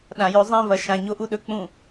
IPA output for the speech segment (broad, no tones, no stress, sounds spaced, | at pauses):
ɗ ã j ɵ zˤ ĩ v ɐ ʃ ã ɲ o ʔ u ɗ ɵ k͡p ũ